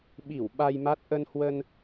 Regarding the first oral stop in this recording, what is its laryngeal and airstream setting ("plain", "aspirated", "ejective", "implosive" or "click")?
implosive